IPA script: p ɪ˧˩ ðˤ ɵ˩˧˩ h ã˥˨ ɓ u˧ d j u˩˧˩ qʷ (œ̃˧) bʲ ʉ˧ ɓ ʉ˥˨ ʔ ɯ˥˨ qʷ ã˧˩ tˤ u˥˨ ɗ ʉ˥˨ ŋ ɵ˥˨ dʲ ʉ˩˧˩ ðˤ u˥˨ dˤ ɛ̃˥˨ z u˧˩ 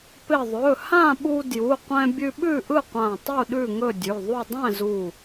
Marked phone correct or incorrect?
incorrect